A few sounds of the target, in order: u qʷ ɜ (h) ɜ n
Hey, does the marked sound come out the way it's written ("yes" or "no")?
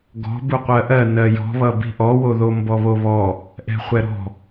no